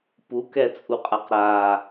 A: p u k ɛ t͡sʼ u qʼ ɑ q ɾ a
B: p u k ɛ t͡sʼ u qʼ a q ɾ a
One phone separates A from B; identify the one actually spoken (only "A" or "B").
B